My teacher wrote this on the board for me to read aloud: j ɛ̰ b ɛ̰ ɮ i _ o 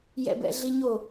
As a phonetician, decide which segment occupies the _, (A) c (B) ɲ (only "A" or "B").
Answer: B